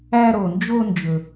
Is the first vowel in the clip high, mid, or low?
low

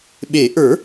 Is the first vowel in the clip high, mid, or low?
mid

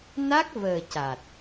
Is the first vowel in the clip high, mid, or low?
low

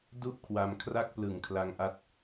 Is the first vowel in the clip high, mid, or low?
high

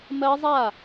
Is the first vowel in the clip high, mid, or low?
mid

